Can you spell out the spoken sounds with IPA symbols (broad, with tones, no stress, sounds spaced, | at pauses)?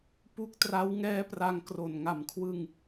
p u˦˥ k̚ t r a˦˥ w ŋ ɛː˦˥ p r a˧ ŋ k r o˨˩ n ŋ a˨˩ m kʰ w ɯ˧ ŋ